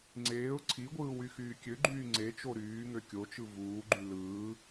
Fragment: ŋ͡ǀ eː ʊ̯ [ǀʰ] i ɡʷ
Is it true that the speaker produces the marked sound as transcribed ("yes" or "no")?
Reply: yes